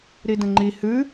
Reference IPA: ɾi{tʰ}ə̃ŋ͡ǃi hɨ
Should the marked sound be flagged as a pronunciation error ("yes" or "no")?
yes